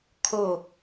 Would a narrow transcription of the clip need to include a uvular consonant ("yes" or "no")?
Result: no